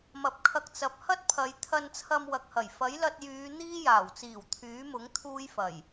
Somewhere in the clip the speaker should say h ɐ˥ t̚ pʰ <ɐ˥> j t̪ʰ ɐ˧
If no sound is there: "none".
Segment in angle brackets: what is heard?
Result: ɐ˨˧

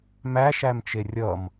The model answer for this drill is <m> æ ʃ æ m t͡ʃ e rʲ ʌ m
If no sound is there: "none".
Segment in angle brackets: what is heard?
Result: m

